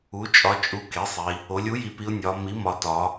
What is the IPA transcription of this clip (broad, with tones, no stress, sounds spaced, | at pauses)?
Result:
u˩˧ t͡ʃʼ ɒ˩˧ t͡ʃʼ u˩˥ k e˩˥ sˤ i˩˧ | o˩˧ lʲ u˩˥ j i˩˧ p i˩˧ ʊ̯ nʲ ɒ˩˧ m i˩˥ m ɒ˩˧ t ɒ˩˧